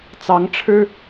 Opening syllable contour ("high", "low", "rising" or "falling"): rising